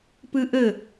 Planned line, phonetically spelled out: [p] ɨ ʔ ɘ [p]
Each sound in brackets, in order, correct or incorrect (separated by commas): correct, incorrect